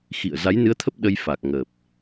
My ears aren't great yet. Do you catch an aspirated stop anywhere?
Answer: yes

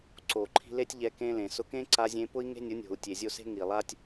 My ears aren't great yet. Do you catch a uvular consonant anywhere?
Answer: no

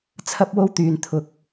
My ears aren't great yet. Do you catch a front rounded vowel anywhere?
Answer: yes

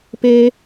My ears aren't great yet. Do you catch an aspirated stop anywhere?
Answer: no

